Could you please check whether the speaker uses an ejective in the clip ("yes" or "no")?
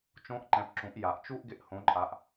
yes